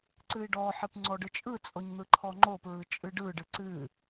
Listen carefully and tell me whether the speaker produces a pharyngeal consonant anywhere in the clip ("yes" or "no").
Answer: yes